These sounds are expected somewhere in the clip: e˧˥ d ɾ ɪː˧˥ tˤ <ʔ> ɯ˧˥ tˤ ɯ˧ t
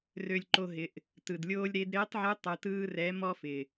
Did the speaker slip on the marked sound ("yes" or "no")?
yes